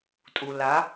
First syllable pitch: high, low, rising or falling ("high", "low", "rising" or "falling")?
low